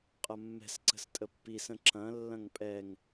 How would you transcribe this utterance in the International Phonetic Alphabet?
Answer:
qʼ ɐ mː ɛ̤ s ǀ ə̤ s tʼ ə pː i s ə̃ ǁ ɐ̃ lː ɐ̃ ŋ pʼ ɛ ŋ

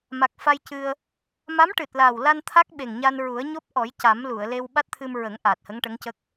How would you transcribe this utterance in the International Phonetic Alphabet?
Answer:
m a˨˩ k̚ f a˧ j c ɨ˧ ə̯ | m a˧˥ m ʈ ɨ˨˩ t̚ l a˨˩ w l a˧ n t̪ʰ a˦˥ k̚ ɓ e˨˩ ŋ ɲ a˧ n ɹ u˨˩˦ ə̯ ɲ o˦˥ p̚ ʔ ɔ˨˩˦ j c a˨˩˦ m l u˨˩˨ ə̯ l e˧ w ɓ a˦˥ t̚ t̪ʰ ɨ˧ m ɹ ə˨˩˦ ŋ ʔ aː˨˩ t̚ h ə˧˥ ŋ ʈ ə˧˥ ŋ c ə˦˥ k̚

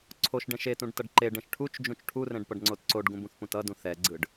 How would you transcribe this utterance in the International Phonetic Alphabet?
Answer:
ǀʰ o ʃ ɖ ɛ̃ ʃ e t ũ ɖ t ʌ ɖ ǃ e ɖ ɛ̃ ʃ ʈʰ u t͡ʃ d͡ʒ ũ t͡ʃ ʈʰ u r ɛ̃ ɖ p ʌ ɖ ŋ͡ǀ o t ǀ o ɖ ɡ ũ b ũ θ p ũ t ʌ d ũ θ ɛ ɡ͡ǀ ɯ ɖ

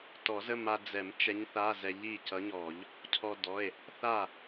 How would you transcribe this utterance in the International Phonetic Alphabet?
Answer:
t ɔ˨˩˦ z ə˧˥˧ m a˧ d͡z ɛ˨˩˦ m t͡ʃ ɛ˧˥ ɲ θ a˧˥˧ z ɛ˧ ʎ i˥˩ c ʌ˧˥ ɲ ɔ˨˩˦ ʎ | cʰ ɔ˧ d ɔ˩˧˩ e̯ | θ a˥˩

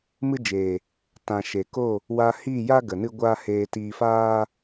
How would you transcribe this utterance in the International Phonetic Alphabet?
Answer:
m ɨ˦ d͡ʒ eː˨ | t ã˨ ʃ e˨ k o˦˨ | w a˧ h iː˦˨ j a˦ ɡ ə˨ n ɨ˦ ɡʷ aː˦ h eː˧ t iː˧ f aː˦

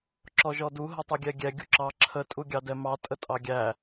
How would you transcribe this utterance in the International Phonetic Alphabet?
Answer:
ǁ ɔ ʒ ɔ d u ɦ ə tˤ ɛ ɡʲ ɛ ɡʲ ɛ ɡʲ u ǁ ɑ ǁʰ ə tʼ u ɡʲ ɑ d ɛ m ɑ tʼ ə tʼ ɑ ɡʲ æ

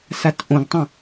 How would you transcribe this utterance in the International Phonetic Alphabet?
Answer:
s a t ʔ õ ɡ tˤ ɐ̃

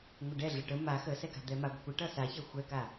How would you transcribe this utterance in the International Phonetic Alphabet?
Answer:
ŋʷ ə ɖ ɛ ɮ ə ʈ ə m a x ə s ɛ k a̤ d̪ ɛ m a ɡʷ ə̤ kʷ ʌ ʈ ʌ s a ç ɛ xʷ ɛ k a

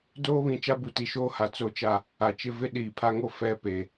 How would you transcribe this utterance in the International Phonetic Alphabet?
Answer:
d oː˦ β ĩ˨ t͡ʃ a˦ b u˨ t i˨ ʃ oː˦ h a˨ t͡s o˦ t͡ʃ a˦˨ | a˨ t͡ʃ ɪ˦ v ɪ˦ ɗ iː˨ pʰ a˦ ŋ o˦ f ɛ˦ p e˨

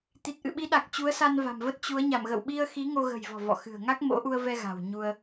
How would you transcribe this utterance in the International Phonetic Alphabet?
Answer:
t̪ i˨˩ t̚ ʔ ɨ̰˧˨ ɓ i˨˦ ɗ a˨˩ k̚ t͡ɕ u˨˦ ə̯ s a˧ n v a̤˨˩ m v ə˦˥ t̚ t͡ɕ u˨˦ ə̯ ɲ a˧˩ m ɣ ə̰˧˨ w ɓ i˧ ə̯ x i˨˦ ŋ o˧ ɣ ə̤˨˩ j v ɔ̤˨˩ v ɔ̰˧˨ x ɨ̤˨˩ ə̯ ŋ a˦˥ k̚ m o̰˧˥ ʔ u˧ ə̯ v ɛ˧ ɣ a̤˨˩ w ɲ u˧ ə̯

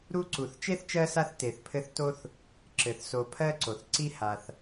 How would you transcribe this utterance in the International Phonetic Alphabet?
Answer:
ɾ u˦ ǀ u˩ θ t͡ʃ e˥ θ t͡ʃ ɜ˦ s a˦ θ t e˩ θ pʰ ɘ˦ θ t o˥ θ | ǁ ɘ˩ θ s o˨ pʰ ɜ˥ ǀ o˩ θ ǀ i˥ h a˨ θ

